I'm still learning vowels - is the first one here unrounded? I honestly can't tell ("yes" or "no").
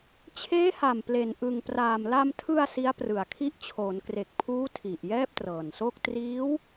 yes